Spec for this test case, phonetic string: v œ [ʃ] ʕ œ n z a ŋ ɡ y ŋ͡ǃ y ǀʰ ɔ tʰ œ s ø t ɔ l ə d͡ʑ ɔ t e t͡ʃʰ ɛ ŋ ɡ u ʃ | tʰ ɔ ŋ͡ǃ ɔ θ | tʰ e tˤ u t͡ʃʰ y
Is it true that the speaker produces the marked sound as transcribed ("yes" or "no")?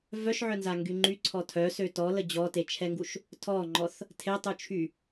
yes